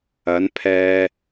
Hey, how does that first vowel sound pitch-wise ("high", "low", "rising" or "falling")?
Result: rising